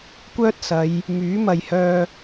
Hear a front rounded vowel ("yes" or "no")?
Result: yes